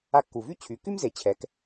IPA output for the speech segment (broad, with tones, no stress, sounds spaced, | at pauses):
a˧ kː u˩ v y˥ t͡ɕʰ y˩˧ k y˥ m z e˩˧ t͡ɕʰ ɛ˩˧ k